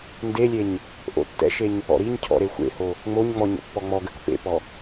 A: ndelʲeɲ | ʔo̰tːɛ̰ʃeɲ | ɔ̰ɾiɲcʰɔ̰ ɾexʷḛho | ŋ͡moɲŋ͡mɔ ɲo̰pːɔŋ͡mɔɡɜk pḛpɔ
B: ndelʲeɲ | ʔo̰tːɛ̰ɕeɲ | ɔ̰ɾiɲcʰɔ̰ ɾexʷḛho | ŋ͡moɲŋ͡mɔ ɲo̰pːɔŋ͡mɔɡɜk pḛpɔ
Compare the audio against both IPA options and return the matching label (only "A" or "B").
A